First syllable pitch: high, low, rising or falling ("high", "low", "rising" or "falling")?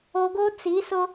low